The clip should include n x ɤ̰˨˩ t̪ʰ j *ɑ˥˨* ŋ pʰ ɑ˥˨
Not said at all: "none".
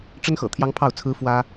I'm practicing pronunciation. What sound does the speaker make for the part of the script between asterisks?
ɑ˦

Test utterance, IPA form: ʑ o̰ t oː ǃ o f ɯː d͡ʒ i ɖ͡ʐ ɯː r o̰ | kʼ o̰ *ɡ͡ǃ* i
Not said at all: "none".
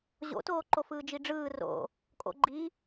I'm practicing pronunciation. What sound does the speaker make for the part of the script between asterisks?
ɡ͡ǃ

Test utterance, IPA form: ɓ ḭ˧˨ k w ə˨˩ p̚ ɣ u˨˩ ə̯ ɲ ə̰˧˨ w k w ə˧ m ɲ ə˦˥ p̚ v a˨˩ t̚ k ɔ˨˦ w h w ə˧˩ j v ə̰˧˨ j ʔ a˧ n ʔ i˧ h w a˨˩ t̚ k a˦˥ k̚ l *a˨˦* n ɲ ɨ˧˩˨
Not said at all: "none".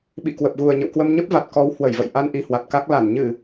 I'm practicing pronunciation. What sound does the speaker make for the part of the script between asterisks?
a˧˩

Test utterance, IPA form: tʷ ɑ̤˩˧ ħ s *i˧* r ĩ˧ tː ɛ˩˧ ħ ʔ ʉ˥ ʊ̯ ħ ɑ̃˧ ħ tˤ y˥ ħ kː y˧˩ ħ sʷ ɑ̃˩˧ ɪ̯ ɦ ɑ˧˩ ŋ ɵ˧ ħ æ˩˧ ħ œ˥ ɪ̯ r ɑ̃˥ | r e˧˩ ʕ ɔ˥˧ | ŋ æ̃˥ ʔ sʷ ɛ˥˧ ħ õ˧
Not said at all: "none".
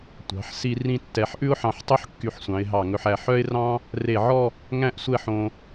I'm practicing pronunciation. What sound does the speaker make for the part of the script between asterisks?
i˧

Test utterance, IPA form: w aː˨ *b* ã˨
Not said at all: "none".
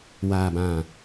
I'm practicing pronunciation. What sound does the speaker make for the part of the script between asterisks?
b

